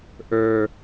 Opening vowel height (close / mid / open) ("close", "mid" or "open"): mid